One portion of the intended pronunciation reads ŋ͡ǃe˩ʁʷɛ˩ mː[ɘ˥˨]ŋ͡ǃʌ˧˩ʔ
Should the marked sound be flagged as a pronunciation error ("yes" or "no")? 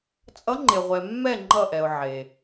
yes